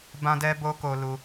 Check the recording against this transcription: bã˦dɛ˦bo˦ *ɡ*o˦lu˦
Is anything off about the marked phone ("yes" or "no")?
yes